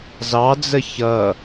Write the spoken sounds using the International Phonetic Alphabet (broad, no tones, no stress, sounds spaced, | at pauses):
z ɑ d͡z ə ç ʌ